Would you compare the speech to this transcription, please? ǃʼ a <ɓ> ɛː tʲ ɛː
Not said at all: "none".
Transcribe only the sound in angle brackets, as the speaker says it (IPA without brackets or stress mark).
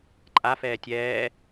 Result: f